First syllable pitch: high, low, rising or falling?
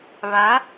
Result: rising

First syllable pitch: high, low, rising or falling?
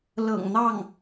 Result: low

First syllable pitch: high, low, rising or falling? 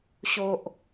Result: low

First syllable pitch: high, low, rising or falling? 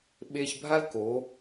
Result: high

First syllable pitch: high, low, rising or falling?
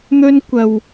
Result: high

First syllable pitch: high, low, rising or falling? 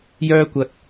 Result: high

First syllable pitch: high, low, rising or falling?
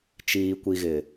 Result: low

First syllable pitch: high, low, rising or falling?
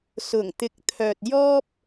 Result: low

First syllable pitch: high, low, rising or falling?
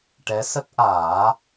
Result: rising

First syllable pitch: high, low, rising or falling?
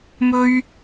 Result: high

